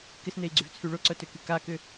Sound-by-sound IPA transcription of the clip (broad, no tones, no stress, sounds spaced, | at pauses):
k ɪ s n e i̯ ɡ͡ǀ y v t͡sʰ y ɭ ʊ ǀ œ t ø k y k a k ʏ